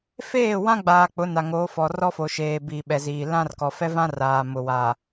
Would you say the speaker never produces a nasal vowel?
no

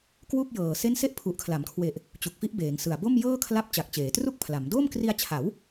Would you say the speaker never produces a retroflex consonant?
yes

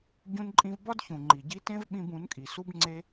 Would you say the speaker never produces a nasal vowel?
no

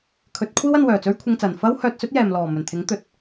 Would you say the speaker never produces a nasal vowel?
yes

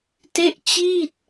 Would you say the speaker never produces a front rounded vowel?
yes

